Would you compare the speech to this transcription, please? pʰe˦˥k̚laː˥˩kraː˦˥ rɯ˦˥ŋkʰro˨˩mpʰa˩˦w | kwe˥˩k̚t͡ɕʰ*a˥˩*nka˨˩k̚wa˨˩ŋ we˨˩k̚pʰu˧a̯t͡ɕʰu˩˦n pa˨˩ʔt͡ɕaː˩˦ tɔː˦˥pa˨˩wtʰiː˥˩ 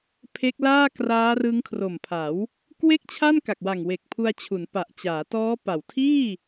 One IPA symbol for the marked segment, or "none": a˥˩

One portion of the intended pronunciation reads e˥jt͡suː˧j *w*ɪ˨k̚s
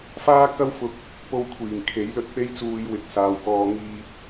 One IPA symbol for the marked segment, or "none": w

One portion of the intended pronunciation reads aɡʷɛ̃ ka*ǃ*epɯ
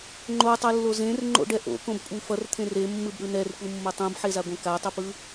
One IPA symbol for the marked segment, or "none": tˤ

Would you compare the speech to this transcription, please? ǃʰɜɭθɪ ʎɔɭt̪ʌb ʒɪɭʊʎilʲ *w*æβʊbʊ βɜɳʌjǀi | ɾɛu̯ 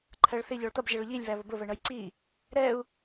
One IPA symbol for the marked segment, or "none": β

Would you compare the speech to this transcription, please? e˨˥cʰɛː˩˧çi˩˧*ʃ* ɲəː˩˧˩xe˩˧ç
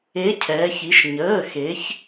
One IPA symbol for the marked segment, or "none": ʃ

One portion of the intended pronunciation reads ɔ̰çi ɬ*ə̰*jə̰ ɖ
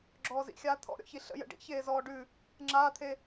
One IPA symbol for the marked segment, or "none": ə̰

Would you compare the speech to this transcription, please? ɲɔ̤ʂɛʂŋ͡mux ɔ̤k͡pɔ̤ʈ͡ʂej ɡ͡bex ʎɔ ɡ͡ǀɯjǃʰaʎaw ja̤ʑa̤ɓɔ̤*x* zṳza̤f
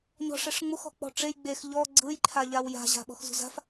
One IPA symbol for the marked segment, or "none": x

